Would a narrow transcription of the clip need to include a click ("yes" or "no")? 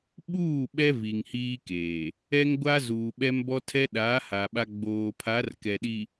no